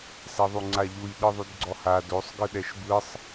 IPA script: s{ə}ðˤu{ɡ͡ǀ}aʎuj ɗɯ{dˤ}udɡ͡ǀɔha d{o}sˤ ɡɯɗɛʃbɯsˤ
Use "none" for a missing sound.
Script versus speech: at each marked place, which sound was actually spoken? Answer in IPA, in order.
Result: ɛ, ŋ͡ǀ, ðˤ, o

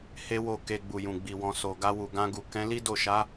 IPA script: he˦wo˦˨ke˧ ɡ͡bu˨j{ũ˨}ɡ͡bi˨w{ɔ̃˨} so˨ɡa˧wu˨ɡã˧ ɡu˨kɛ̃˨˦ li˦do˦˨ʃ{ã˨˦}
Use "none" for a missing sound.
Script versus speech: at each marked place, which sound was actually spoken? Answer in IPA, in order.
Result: ũ˨, ɔ̃˨, a˨˦

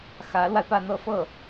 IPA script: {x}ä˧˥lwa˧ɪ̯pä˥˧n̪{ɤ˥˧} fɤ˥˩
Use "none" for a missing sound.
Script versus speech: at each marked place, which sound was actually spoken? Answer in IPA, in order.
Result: x, ɤ˥˧

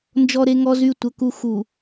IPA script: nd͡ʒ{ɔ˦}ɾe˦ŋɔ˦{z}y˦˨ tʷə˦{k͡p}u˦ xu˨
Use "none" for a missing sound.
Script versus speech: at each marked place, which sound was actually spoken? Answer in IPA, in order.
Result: ɔ˦, z, k

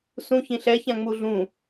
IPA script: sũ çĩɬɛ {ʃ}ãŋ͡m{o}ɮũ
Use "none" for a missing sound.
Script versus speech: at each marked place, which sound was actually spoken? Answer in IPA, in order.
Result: ç, u

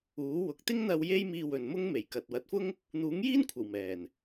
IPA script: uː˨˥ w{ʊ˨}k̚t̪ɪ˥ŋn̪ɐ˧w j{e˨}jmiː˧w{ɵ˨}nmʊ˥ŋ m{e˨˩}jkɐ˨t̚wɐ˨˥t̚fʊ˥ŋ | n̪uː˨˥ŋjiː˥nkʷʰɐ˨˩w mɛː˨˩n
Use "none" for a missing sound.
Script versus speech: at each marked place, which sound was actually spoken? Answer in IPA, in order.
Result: ʊ˨, e˥, ɵ˨, e˨˩

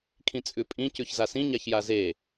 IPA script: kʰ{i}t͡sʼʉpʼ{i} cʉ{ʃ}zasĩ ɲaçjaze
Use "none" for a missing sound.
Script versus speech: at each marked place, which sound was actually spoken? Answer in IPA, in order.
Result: ĩ, ĩ, ç

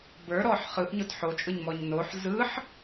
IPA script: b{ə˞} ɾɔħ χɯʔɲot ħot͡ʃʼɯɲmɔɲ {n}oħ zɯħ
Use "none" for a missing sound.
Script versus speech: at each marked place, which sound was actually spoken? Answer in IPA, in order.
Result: ə˞, n

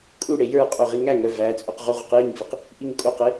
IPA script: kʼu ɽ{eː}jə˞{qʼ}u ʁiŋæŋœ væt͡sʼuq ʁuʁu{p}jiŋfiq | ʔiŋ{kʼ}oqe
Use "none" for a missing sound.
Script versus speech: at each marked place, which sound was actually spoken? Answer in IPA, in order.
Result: e, qʼ, q, kʼ

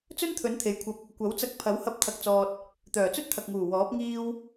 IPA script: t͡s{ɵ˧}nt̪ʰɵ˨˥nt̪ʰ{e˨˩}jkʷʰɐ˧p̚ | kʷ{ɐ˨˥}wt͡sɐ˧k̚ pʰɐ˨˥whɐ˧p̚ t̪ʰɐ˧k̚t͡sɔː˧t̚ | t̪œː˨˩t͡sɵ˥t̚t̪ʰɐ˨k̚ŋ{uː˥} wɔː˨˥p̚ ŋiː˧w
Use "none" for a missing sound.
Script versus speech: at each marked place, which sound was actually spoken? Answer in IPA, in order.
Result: ɵ˥, e˨, ɐ˨˥, uː˨˩

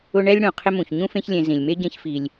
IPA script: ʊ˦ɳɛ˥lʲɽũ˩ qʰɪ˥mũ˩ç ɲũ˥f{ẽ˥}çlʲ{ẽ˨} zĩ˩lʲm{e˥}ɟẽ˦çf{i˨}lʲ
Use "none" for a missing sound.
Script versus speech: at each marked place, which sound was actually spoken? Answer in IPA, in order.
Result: ẽ˦, ẽ˨, e˥, i˨

